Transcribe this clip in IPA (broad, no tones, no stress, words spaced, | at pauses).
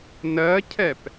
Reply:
nɜcʰɛp